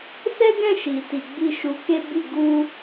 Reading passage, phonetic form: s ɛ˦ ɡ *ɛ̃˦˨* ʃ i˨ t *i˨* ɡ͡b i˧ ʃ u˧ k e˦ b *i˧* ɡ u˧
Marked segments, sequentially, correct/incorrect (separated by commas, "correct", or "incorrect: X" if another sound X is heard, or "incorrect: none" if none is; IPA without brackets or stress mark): correct, correct, incorrect: i˦˨